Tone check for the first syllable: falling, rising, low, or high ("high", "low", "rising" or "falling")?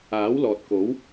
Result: rising